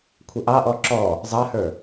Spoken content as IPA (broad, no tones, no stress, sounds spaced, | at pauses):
kʷʰ ə ʔ ɑ ʔ ɔ ǁ ɔ | zˤ ɑ h ə˞